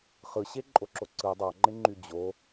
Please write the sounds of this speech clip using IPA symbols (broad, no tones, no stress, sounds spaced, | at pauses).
χ ɯ ɕ e ǃʼ o ǁ o ǀ ɯ dˤ ɑ ŋ͡ǃ e ŋ͡ǃ y d͡ʑ o